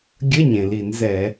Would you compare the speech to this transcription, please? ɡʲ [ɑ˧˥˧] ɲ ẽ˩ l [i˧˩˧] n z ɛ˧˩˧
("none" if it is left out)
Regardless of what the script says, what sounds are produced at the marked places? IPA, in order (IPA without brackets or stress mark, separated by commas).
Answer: ə˧˥˧, i˧˩˧